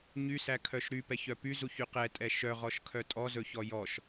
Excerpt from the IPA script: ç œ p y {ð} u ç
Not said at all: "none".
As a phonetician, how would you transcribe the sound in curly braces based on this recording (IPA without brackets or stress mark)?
z